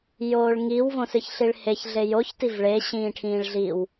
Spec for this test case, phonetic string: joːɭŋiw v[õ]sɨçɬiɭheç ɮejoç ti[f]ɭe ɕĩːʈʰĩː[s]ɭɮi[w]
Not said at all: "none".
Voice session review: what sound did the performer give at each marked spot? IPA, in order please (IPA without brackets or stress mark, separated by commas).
õ, v, none, w